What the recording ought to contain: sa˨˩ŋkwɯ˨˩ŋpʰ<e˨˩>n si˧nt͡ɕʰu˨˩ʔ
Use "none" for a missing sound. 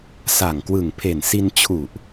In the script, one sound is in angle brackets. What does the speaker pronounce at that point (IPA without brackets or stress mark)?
e˨˩